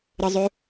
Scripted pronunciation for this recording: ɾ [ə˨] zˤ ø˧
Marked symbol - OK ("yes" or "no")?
yes